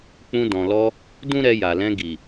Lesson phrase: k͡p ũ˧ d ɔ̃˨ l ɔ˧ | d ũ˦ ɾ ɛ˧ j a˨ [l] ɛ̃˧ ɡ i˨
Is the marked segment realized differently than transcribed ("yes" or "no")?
no